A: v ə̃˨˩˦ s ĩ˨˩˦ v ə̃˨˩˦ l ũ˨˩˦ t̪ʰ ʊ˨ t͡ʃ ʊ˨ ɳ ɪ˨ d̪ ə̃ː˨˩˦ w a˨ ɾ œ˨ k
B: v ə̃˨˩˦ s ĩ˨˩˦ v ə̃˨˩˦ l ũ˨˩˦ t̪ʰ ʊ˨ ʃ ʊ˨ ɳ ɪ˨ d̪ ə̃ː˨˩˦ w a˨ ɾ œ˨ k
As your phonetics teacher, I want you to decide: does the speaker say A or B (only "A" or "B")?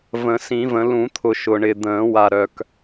B